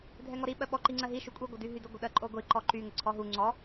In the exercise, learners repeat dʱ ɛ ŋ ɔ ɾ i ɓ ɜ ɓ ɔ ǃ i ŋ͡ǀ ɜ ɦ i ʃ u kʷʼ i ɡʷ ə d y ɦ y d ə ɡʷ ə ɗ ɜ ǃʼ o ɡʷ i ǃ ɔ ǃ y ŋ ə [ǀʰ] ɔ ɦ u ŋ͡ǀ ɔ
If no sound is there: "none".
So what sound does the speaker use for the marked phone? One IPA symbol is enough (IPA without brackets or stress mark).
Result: ǀʰ